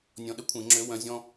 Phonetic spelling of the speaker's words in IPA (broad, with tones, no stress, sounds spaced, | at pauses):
nʲ ɔ̃˧ ɗ ə˥ kʷʰ ẽ˨˩˦ ŋ͡ǁ ø˨˥ w œ̃˨˥ zʲ ɔ̃˥